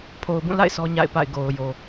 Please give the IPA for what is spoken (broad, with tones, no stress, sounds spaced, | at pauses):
pʰ o˨ ʊ̯ b ũ˦˨ l a̰˦˨ ɪ̯ sʰ ɔ˦ ɲ a̰˦˨ ɪ̯ p a̰˦˨ ɪ̯ ɡ o˨ ʊ̯ j o˨